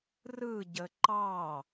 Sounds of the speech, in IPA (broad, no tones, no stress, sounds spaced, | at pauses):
r ɯ ɟ ə ǃ ɑ